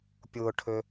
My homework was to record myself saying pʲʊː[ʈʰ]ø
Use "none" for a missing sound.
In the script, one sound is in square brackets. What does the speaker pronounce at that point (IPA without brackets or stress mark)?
ʈʰ